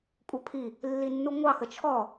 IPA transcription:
kʷʼ ə˞ pʰ i | lː i nː u ŋʷ ɑ x ə t͡ʃʰ ɔ

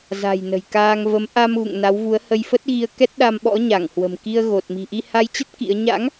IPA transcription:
z a̤˨˩ j n ə̤˨˩ j k aː˧ ŋ v ə˨˦ m ʔ a˧ m ɣ ṵ˧˨ ŋ n a˨˦ w v u˨˦ ə̯ h ə˧ j f ə˦˥ t̚ ɣ i˧ ə̯ k ɛ˦˥ t̚ ɗ a˧ m ɓ ɔ̰˧˥ ɲ a˧˩ ŋ h w ə̤˨˩ m k i˧ ə̯ ɣ o˨˩ t̚ m i̤˨˩ ʔ i˧ h a˧ j t͡ɕ ə˦˥ t̚ k ḭ˧˥ ə̯ ɲ a̰˧˥ ŋ

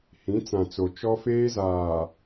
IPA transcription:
h ĩ˨˦ t͡s ã˨ t͡s o˨ t͡ʃ ɔ˦ f eː˦ z aː˨

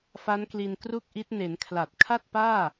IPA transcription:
f a˦˥ n k l i˧ n k r u˥˩ k̚ ʔ i˦˥ t̚ n e˩˦ n kʰ l a˨˩ t̚ kʰ a˥˩ t̚ p aː˥˩

